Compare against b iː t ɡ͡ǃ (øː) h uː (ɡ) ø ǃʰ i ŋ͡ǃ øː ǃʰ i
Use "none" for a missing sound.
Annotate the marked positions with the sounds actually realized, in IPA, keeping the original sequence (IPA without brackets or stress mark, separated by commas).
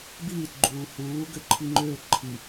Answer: uː, ɡ